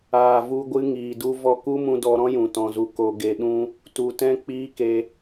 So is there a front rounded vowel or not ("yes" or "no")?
no